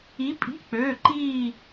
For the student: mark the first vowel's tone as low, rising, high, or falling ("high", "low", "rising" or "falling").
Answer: rising